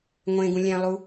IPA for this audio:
ŋʷ ẽ ɡ ũ lʲ ɛ̃ lˠ u

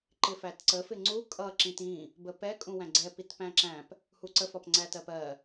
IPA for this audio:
ǃ ɪ f æ t ǀ ə f ɪ ŋ͡ǀ u kʼ ʌ ǁ ĩ t ĩ | b ə p ɛ kʼ ũ w æ̃ ɡ͡ǀ ɛ p i t p æ̃ ǁ æ̃ p | h u ǀ ə f ɒ p ŋ͡ǀ æ t ɜ p ɜ

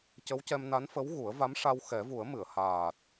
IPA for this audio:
c ə˧˥ w c ɛ˧ m n a˧˥ n f ə˧˥ w ɣ u˨˩˦ ə̯ v a˧˥ m ʂ a˧ w x ɛ˨˩˦ v u˨˩˦ ə̯ m ɨ˨˩˨ ə̯ h aː˨˩ t̚

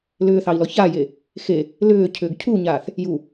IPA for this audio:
l ʏː θ ɑ i̯ l ɔ ç a j e | x e | l ʏː cʰ ʏː ɡ cʰ u ɲ aː θ | j u

